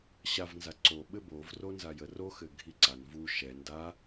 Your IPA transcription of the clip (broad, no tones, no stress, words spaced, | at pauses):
ɕavnza ǀoɓɘ bovro nzajə roxɘ ɡʱiǀan vu ʃɛ nda